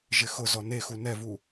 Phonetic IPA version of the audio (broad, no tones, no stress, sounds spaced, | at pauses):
ʒ ɪ x ʊ z ɔ n e x u n ɛ v u